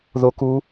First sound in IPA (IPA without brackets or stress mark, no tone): ð